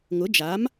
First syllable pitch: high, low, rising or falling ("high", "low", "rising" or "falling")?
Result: rising